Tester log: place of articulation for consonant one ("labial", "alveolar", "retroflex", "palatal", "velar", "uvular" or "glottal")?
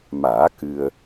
labial